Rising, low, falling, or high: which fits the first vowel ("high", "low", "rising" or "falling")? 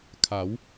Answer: rising